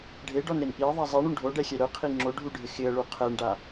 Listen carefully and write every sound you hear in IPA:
ɖʱ e ɖ ɔ n ɾ e n ʔ i ə̯ ðˤ a zˤ i ɳ u ɳ ɖʱ o ɖ ɛ xʲ ɛ ɾ ʊ qʰ i ŋ͡ǁ o ɖʱ u ɖʱ ɪ x ɪ ə̯ ɭ u qʰ ɛ ɳ ɖ a

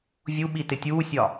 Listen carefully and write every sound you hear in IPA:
vʲ u ɓ i t ɪ tʲ uː sʲ ɒ

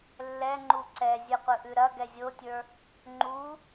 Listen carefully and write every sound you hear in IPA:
lː ɛ ŋ͡ǃ u ǀ ɛ zʲ ɯ qʷ ɯ ʔ ʉ ɾ ɐ ɡ ɛ zʲ o tʲ ə˞ | ŋ͡ǃ u

